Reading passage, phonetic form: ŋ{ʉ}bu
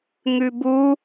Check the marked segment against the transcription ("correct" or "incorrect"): correct